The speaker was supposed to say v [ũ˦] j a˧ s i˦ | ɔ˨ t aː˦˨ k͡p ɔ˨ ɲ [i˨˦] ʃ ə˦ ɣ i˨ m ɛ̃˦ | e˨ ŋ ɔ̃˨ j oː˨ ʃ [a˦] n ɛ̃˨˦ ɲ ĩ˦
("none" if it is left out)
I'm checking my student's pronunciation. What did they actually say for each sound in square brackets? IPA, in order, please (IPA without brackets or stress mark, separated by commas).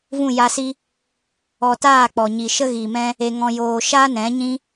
ũ˦˨, i˨, aː˦